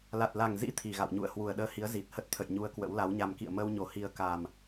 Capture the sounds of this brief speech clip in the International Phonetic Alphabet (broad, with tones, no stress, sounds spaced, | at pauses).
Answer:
l a˨˩ t̚ l a˨˩ ŋ z ḭ˧˥ t̪ʰ i˨˩ ɣ a̰˧˨ w ɲ ṵ˧˨ ə̯ h w u˨˩ ə̯ ɗ əː˧ h i˨˦ ə̯ z i˨˩ t̚ h ə˦˥ t̚ t̪ʰ ə̰˧˨ j ɲ u˧ ə̯ k w ə̰˧˥ w l a˨˦ w ɲ a˧ m k ḭ˧˨ ə̯ m əː˧ w ɲ o˨˩ h i˨˩ ə̯ k a˨˩ m